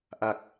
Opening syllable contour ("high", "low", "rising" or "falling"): low